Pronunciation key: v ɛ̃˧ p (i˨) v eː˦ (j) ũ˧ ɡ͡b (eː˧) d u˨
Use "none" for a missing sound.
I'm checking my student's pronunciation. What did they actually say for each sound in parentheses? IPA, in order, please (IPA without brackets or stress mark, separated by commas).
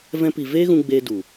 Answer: i˨, ɣ, eː˧